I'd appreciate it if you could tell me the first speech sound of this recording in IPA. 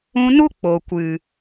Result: ũ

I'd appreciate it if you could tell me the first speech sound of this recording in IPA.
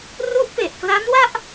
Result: r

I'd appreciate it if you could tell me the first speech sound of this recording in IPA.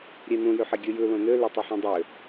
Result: ɾʲ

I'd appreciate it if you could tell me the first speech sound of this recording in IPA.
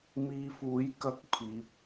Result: m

